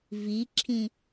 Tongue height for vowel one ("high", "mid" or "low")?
high